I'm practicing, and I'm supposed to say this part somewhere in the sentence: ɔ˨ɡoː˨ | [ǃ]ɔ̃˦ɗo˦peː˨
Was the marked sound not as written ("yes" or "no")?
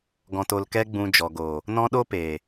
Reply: yes